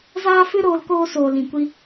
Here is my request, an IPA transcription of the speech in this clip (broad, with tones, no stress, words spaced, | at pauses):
zaː˦fɨ˦ ɾoː˧lkoː˧soː˨lĩ˨ kʷi˦